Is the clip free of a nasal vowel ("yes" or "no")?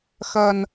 yes